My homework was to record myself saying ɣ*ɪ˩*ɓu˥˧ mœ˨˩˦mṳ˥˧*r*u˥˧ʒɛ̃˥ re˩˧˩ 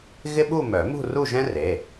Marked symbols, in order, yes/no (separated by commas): no, yes